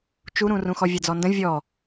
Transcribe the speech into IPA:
t͡ʃ u ɾ ũ r ũ x ɔ vʲ a d͡z ɔ n d ə̃ vʲ ɔ

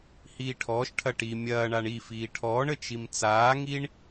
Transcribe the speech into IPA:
h iː ʈʰ ɔː ʃ ʈʰ ɐ ʈ i mʲ ɐː ɳ a ɳ i f iː ʈʰ ɔː ɳ ə t͡ʃ i m t͡s aː ŋ i ɳ

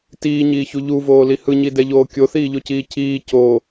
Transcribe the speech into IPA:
t iː ɲ iː ç u ʎ u v oː l i h ɯ ɲ i d ɛ ʎ oː kʲ o θ iː ʎ o c iː c iː c o

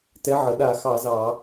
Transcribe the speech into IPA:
t ɛ˨˥ ʕ ə˩˧ ɗ a˧˩˧ x ɑ˧˩˧ z ɑ˧˩˧

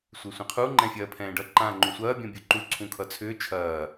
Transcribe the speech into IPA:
sʷ e sʷ ɛ̃ qʰ u ŋ͡ǃ ɛ̃ fʲ ɐː pʰ ɛ̃ː ɖ ʌ ǃ ãː ŋ͡ǃ ũ sʷ ɐː bʲ ɔ̃ bʲ u ǃ u ǀʰ ũ kʰ ʌ t͡sʰ ʏː t͡ʃʰ ɐː

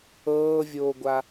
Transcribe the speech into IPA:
ɤː vʲ oː ɡʷ a

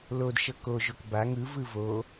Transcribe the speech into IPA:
l o d ʃ ɤ k o ʒ o k b a ŋ ɯ v ɯ v o

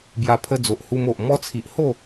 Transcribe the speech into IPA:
b j a˧ pʰ ə˧ d͡z o˨ ʔ h u˧ m o˨ ʔ m ɔ˧ t͡sʰ i˨ ʔ h o˥˧

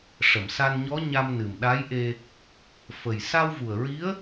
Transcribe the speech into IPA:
ʂ ə˨˩˨ m s a˧ n ɲ ɔ˧˥ ɲ a˧ m n ɨ˨˩ m ɗ a˧˥ j ʔ e˧ | f ə˨˩ j s a˧ w v u˨˩ ə̯ ɹ i˧˥ ə̯

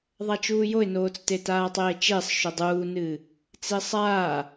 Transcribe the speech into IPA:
ðˤ a t͡ʃ uː j o ɪ̯ n oː t͡s t e t aː tˤ eː t͡ʃ e sˤ ʃ o dˤ uː n ɨː | t͡s e sˤ aː

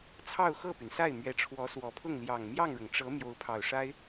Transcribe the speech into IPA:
t͡sʰ ɑ˥˧ ʊ̯ x ɤ˥˩ p y˩ n s a˥˩ ɪ̯ m ɥ ɛ˧˥ ʈ͡ʂʰ w ɔ˧˥ s w ɔ˨˩ pʰ ʊ˥˩ ŋ l j ɑ˨˩ ŋ m j ɑ˥˩ ŋ ɻ ʊ˩ ŋ ʈ͡ʂ ɤ˧˥ m j o˧˥ ʊ̯ pʰ ɑ˨˩ ʊ̯ ʂ a˥ ɪ̯

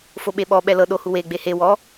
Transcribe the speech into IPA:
f o ɓ e ɓ ɔ ɓ ɛ l ɤ ɗ o h u w e ɡ͡b e h e w ɔ

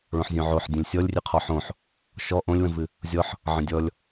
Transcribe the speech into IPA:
ɭ õ ħ zʲ õ ʕ o ħ dʲ ə̃ lʲ sʲ ɔ lʲ rʲ ɨ qʰ ɔ ħ õ ħ | ʃ ɔ ʔ õ lʲ w ə̃ v ɨ | zʲ ɔ ħ | ʕ ə̃ dʲ ɔ lʲ

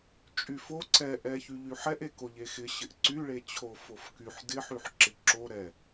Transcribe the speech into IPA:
t͡ʃʼ y f o ǀ ɛ ʔ ɛ ç y ʎ y ħ ɛ ʔ e k o ʎ e x ɪ ɕ ɪ ʔ ǀ y ɭ e t͡ɕʰ o f o f k y ħ d ɪ ħ y ħ ǁ ɪ ǁ o ɾ ɛ

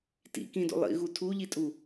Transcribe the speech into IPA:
t ḭ k ĩ d o̰ lˠ ḭ ɣ u tʰ u ʎ i tʼ u

